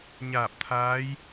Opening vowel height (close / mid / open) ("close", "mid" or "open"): open